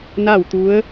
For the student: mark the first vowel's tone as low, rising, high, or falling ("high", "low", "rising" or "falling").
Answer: falling